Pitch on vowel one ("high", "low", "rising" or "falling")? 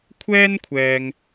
high